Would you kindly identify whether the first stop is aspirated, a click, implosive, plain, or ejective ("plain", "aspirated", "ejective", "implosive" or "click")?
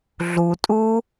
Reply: ejective